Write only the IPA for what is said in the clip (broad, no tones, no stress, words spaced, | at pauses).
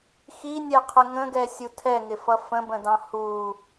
xinʲɛqʰə ŋə̃ɡɛsʲu tʰɛŋɪfʌ fə̃bə̃dɑ̃ hu